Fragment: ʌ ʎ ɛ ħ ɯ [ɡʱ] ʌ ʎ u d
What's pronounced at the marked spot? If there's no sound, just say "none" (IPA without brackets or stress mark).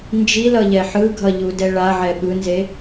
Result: ɡʱ